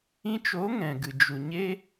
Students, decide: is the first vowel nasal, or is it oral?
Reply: nasal